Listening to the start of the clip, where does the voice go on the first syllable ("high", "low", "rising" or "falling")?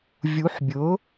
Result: rising